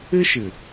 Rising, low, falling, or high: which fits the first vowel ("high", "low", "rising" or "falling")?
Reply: high